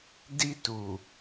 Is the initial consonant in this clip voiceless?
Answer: no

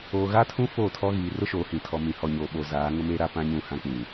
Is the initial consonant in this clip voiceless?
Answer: no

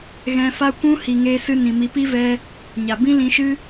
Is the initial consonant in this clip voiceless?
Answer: no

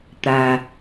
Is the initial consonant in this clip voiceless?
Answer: yes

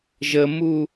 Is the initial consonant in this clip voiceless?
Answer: no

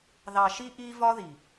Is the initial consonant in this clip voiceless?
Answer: no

